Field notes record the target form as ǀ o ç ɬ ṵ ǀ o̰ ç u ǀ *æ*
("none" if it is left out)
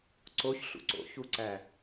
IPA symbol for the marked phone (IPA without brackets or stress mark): æ